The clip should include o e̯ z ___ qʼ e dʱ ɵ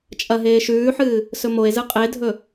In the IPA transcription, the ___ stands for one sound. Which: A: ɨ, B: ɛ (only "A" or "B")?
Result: A